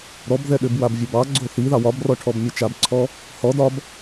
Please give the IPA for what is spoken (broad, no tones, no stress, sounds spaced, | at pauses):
ɾ ɔ b ð ɛ ɗ ʏ b w a b vʲ o b ɑ ɡ͡ǀ o θ i ð ɑ w ɒ b r ɔ ʈʰ ɔ b mʲ ɛ t͡ʃ a b ǀʰ ɔ | h ɔ d ɒ b